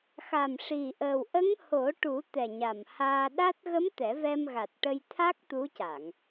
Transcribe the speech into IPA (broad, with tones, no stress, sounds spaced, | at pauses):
x a˨˩ m ʂ i˨˩ ʔ əː˨˩ w ʔ ə˧˥ ŋ h o˨˩˦ ʈ u˨˩˦ t̪ ɛ˨˩ ɲ a˨˩ m h aː˧ ɗ a˦˥ t̚ ɣ ə˧˥ m t̪ ɛ˨˩˦ v ɛ˧ m ɣ a˨˩ t̚ ʈ ə˧ j t̪ʰ a˦˥ k̚ t̪ u˧˥ c a˨˩˨ ŋ